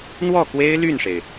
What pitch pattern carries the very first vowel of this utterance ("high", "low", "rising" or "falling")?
falling